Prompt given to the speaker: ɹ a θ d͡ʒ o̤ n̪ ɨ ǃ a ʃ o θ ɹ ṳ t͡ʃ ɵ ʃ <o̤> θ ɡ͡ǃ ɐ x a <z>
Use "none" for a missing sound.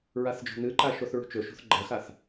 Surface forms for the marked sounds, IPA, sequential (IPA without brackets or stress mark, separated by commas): o̤, θ